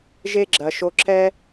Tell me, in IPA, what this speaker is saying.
ʒ e˦ ɡ͡ǁ ɐ˨ ʃ o˧ ǁ ɛ˧

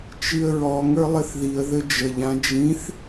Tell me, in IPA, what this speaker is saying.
t͡ʃ i ə̯ ɹ ɔ ŋ ə˞ lˠ ɘ θ ð i ə̯ ð ɘ d͡ʒ ə ʎ ã d͡ʒ ĩ θ

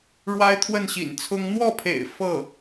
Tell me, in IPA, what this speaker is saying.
ɻ w a˥ ɪ̯ t̪ʰ w ə˥˩ n ɕ ḭ˨˩ n t͡sʰ ʊ˥ ŋ n̪ w ɔ˥˩ pʰ ḛ˨˩ ɪ̯ f ɤ˥˩

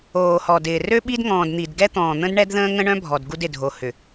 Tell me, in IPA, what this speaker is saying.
oː˨ h ɔ˨ d ɪː˨ r ø˦ ɓ i˦ d ŋ ɔ̃ː˨ d n̪ i˨ d ɡ ɛ˦ t̪ ɔ̃ː˨ n̪ ə̃˦ d ɳ ɛ˦ d ð ə̃ː˦ ŋ ə̃˦ ɳ œ̃˦ bʱ ɔ˨ d ɡ u˦ d ɪ˨ dʱ o˨ h ʏ˨

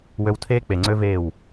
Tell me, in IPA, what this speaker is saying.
w ø˧ w tʰ eː˦ k͡p e˨ ŋ͡ǀ ø˦ v eː˦˨ w

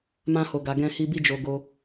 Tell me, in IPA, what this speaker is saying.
m ã˧ h o˨ ɡ a˨ ɡ ɛ̃˧ h i˧ b i˦ d͡ʒ o˧ ɡ o˧

